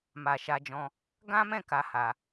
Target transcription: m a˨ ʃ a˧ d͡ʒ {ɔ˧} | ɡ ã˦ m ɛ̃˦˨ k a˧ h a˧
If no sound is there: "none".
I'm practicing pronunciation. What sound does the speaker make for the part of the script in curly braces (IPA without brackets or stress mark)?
ɔ̃˧